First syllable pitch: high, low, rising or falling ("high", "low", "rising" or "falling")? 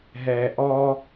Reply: low